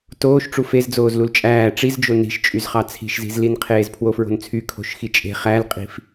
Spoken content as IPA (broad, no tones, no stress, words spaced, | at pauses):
toːʃʈ͡ʂu fezd͡zoːz lult͡ʃʼæː ʈ͡ʂizd͡ʒo ni̤ʃt͡ʃʼyzχɑ t͡sʰi̤ʃzi̤zlin qʰeːzpʰwofɹo̤nt͡sʰy kʰo̤ʃxit͡ʃʼe̤ χælqʼi̤f